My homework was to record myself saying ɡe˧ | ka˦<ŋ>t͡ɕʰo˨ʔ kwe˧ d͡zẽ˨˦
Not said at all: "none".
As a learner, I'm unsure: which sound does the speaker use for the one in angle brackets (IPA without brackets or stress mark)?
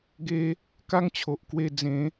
ŋ